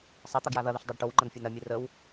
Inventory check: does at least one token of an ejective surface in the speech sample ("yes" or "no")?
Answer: no